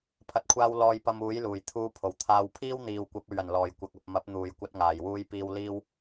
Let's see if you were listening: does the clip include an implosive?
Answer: no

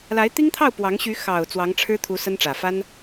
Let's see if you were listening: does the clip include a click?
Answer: no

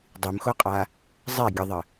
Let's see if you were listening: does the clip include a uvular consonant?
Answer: yes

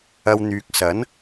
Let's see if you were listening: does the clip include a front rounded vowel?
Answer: yes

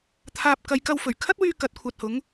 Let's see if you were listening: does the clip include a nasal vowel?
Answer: no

